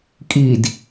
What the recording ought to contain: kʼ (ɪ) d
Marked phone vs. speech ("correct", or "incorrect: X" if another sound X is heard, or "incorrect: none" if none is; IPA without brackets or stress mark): incorrect: i